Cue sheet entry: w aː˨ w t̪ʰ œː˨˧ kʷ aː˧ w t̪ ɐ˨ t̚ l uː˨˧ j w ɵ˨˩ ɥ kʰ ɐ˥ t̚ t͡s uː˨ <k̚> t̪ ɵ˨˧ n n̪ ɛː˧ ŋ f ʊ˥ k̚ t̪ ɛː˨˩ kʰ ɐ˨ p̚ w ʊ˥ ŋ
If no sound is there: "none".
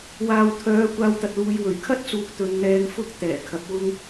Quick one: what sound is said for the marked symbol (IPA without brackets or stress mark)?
k̚